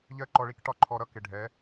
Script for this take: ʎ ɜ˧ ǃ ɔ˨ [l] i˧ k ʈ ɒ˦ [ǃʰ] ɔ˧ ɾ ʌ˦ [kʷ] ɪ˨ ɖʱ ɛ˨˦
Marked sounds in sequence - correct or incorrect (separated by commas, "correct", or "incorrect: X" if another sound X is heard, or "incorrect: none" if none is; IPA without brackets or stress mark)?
incorrect: ɭ, correct, incorrect: k